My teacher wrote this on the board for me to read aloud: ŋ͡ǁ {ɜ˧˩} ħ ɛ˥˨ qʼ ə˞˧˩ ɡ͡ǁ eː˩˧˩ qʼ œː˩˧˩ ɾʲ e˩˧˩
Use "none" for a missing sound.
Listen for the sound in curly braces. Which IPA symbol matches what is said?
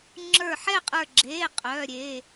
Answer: ə˞˧˩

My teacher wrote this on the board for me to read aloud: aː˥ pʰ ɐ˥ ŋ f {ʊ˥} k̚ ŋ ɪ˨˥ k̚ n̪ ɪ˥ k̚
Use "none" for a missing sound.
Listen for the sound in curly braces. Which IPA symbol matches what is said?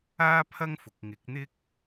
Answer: ʊ˨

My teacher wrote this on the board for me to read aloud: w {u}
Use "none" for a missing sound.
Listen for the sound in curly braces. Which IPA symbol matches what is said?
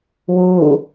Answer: u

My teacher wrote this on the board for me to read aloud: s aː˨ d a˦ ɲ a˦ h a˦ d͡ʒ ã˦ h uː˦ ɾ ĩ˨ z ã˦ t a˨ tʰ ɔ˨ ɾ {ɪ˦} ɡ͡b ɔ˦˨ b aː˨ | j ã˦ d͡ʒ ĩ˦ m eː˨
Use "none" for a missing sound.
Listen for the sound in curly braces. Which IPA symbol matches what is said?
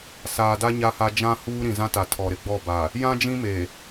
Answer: ɪ˦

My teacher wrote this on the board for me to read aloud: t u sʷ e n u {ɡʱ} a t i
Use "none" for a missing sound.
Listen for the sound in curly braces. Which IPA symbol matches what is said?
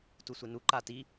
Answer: ǃ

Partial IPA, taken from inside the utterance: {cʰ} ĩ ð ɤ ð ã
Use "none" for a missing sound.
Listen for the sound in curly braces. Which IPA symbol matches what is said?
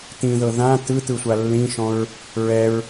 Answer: t̪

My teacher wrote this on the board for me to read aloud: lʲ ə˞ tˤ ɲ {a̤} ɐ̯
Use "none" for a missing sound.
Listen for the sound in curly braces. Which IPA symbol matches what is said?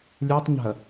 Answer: a̤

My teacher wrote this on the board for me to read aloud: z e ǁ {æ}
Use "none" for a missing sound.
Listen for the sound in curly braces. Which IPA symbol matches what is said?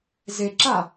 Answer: a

